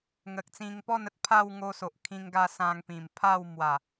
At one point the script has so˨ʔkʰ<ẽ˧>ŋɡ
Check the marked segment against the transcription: incorrect: ĩ˧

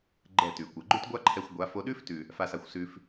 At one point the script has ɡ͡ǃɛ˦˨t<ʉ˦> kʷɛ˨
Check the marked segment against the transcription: incorrect: ʉ˨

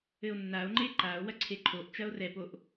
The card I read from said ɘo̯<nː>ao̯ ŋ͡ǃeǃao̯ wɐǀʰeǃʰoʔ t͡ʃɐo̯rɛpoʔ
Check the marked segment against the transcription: correct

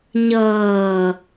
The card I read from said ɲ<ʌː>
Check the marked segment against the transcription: correct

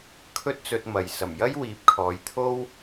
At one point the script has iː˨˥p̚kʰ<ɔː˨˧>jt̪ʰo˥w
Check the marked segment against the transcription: correct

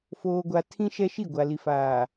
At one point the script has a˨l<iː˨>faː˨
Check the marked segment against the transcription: incorrect: i˨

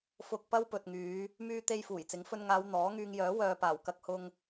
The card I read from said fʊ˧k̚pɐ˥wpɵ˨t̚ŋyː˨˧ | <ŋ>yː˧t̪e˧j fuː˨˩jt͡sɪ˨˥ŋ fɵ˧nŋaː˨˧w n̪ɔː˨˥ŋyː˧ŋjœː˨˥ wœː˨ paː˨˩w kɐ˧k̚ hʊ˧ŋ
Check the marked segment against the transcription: incorrect: m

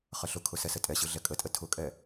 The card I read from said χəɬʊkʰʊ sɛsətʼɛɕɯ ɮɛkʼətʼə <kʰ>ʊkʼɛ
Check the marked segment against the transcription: incorrect: tʰ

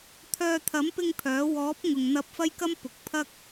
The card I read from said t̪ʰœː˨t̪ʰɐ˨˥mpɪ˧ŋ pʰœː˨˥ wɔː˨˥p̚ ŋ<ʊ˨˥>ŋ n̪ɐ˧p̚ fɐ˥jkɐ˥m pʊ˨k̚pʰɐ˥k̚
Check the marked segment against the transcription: incorrect: ʊ˨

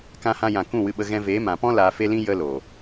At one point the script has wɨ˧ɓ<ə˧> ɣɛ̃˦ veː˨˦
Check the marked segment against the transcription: correct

